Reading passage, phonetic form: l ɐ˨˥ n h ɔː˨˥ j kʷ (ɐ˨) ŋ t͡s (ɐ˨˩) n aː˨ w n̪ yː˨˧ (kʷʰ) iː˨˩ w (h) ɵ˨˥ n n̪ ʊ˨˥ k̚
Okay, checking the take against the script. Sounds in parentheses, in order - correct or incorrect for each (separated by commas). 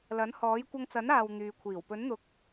incorrect, incorrect, correct, incorrect